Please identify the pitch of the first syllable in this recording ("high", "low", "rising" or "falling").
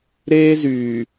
high